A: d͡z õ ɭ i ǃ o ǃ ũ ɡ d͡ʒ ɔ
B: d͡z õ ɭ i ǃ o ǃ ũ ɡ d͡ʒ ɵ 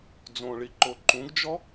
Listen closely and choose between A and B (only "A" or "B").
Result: A